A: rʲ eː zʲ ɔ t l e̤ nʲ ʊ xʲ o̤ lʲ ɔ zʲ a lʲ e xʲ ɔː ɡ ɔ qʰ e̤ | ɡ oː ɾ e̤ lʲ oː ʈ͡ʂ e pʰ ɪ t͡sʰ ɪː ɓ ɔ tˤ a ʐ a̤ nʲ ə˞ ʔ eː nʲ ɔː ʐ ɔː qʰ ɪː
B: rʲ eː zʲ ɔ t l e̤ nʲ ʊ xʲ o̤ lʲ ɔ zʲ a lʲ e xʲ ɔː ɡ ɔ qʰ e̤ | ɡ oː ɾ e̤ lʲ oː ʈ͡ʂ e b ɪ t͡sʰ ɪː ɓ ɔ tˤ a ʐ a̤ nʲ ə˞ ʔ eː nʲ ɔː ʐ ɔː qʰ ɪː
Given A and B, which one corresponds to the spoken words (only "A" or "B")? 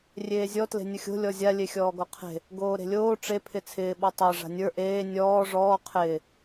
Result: A